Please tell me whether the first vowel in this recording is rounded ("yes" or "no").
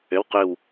yes